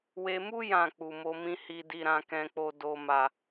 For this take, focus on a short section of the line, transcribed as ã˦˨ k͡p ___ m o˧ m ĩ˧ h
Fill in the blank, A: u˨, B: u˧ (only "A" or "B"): A